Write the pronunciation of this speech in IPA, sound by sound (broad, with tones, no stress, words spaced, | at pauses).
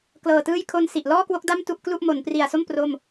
klɤː˨˩tɯː˥˩j kʰo˧nsi˨˩ʔlɔː˥˩kwo˦˥k̚ da˥˩m tu˥˩ʔklu˥˩ʔ mo˩˦npri˨˩a̯so˥˩m pro˥˩m